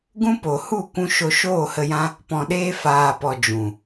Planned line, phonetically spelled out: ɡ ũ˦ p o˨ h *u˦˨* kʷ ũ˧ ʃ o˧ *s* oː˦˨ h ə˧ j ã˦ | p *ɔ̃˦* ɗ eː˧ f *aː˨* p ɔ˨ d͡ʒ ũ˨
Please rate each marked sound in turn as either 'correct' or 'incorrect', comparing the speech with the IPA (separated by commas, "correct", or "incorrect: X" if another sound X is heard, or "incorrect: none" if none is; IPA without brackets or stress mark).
correct, incorrect: ʃ, incorrect: ɔ̃˨, correct